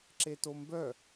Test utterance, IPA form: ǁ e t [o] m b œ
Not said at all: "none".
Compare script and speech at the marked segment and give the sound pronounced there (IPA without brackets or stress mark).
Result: o